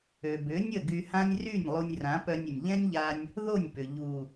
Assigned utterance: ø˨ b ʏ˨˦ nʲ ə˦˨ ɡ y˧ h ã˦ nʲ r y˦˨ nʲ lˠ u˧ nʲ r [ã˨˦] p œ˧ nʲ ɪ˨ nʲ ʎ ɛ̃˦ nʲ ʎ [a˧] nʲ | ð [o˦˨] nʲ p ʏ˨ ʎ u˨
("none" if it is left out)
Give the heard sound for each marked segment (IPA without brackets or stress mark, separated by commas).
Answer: ã˨˦, a˧, o˦˨